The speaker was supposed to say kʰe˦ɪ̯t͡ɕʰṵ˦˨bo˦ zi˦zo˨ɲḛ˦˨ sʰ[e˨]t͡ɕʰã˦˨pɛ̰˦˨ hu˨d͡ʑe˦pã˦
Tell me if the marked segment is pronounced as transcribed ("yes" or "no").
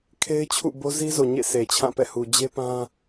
yes